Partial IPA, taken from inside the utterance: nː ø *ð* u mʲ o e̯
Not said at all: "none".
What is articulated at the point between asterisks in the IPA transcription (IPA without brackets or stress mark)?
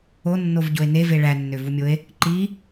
v